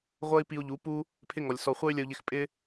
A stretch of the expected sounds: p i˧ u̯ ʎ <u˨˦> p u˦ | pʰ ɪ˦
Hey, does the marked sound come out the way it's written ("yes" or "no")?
yes